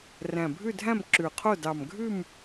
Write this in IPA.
ræ̃˨˩ bʱʉ˥˨dʱæ̃˥˨m ǁʉ˨˩qʰo˥˨ dɑ˨˩mɡʱʉ˥˨m

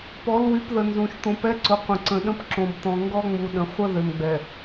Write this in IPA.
pɔ˨˦lwy˨˦pðə˨ nzũ˨ʃ t̪õ˨pɛ˦ǀʊ˨ qʷə̃˨ǀə̃˨ɗə̃˦p ǁõ˨bt̪ɔ̃˨ŋɡɔ˦ ŋ͡mu˨ɗə̃˨ χʷə˦ ðø˨mɡ͡bɛ˨

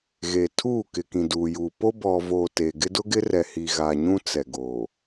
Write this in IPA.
ɣe˨tʰuː˦˨ kɪ˨kĩ˨duː˨juː˨ po˦ bɔ˨voː˨ teː˨ɡɪ˦ dʊ˦ɡɪ˦rɛ˨hi˨ ɣa˨ɲũ˦ t͡sɛ˨ɡoː˨

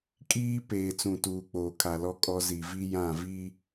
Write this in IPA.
kʼiː˦ peː˨t͡sũ˨tuː˨k͡poː˨ kʰa˨lɔ˦kʼɔ˦ zi˨vi˦ jã˦˨ vi˦

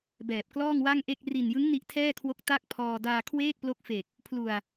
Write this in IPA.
bɛː˨˩p̚klɔː˥˩ŋwa˥˩ŋʔe˥˩k̚ ri˨˩njɯ˦˥ŋ ni˦˥ʔtʰɛː˥˩kʰwo˦˥k̚ ta˥˩k̚pʰɔː˧ daː˧kʰweː˥˩k̚plo˦˥k̚fe˨˩k̚ | pʰlu˨˩a̯

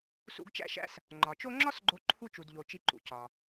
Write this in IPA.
sṵ˦ɡt͡ʃæ̰˥ʃæ̰˥s | ŋ͡ǃɒ˩t͡ʃo˦ŋ͡ǁɒ˥s ɡ͡ǃo˦ǃʰu˥t͡ʃu˨dʎo˨ t͡ʃi˦ǃṵ˨cɒ˩

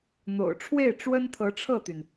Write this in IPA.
n̪o̰˨˩ʊ̯ ʈ͡ʂʰwe˥˩ɪ̯ ʈ͡ʂwə˥nt̪ʰɤ˧˥ʈ͡ʂʰɤ˥˩t̪y˩n

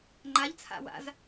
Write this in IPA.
ŋ͡ǃaʎt͡sʰa̰ wa̰z

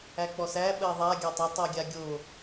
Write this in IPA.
æk͡pɔsæ ɓɜðˤa ɡʲætˤə tˤuɡʲaɡʲo

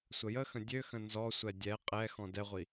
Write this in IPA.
sʷəjəxə̃ dʲøxə̃ nzɔsʷɛ dʲɛ qʼɛxɔ̃ dɛʁʷi

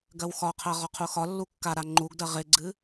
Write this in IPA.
ɡɜwxɒqʰɜ ʁɒqʰuxɒlːu kːa ɾaŋ͡ǃuɡdɜ ʁɪɡ͡ǀɨ

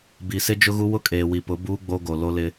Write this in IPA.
bi˨sɪ˦d͡ʒʊ˦ɣu˦ wʊ˦kʼeː˨wi˨ pʊ˨˦buː˦ ɡ͡bo˦ɡo˨ lo˦lɪ˦

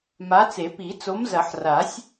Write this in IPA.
ma˨˥t͡se˨˩˦pi˨˩˦ t͡so˨˥mzɐ˨˩˦ħra˨˩˦sʲ

